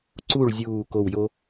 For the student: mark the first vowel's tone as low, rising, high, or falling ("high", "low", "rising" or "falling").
falling